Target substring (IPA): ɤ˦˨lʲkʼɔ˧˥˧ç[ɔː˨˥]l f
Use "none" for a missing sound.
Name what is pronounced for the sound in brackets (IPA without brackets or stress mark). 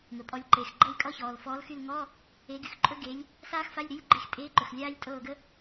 ɔː˩